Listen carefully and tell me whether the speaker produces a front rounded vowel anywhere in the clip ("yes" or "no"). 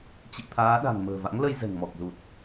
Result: no